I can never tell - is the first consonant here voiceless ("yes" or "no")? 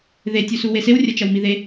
no